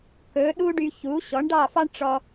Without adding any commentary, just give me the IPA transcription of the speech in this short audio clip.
kɵ˩˥ɗu˥ ɖy˧çu˩˥ ɕɔ˩˥ɳɖɑ˥˩fɑ˥ɳ ʈ͡ʂɔ˧

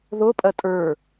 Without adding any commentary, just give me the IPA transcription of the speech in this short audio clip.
ðopʼɐ tʼə˞

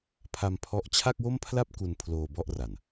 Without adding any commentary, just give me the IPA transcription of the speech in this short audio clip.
pʰa˧mpʰɔ˦˥ʔ t͡ɕʰa˥˩k̚wo˥˩mpʰla˥˩p̚ ku˧n pʰloː˧bɔ˥˩ʔra˨˩n

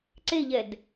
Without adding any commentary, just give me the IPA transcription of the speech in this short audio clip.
ǀeʎɛd

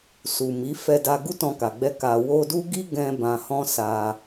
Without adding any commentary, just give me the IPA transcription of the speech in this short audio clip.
su˨mi˨˦ fɛ˧da˧ ɡu˦tɔ̃˧ka˨ɡ͡bɛ˧ ka˨wo˧du˦ɡi˦ ɡɛ̃˧ bã˨hɔ̃˧ sa˧

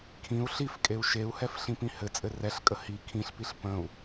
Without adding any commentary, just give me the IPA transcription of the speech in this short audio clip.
kʰĩu̯ ɬifkʼeu̯ ʃeu̯hɛf ɬĩpĩhɘt͡sʼɘ rɛɬkʼə hi kʰĩɬpiɬ pə̃u̯

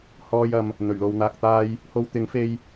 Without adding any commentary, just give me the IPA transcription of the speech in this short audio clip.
hɔː˧jɐ˨m | n̪ɵ˨˩ɥlo˨w n̪aː˨k̚t̪aː˧j | ho˧wt̪ɪ˨˥ŋ fe˧j

